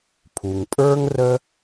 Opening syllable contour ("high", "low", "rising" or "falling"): low